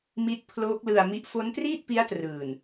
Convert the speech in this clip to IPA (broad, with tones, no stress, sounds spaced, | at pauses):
m i˦˥ t̚ pʰ l oː˦˥ k̚ l ɯ˧ a̯ m i˦˥ ʔ f o˦˥ n t r iː˥˩ t̚ p i˦˥ a̯ t r ɯː˨˩ n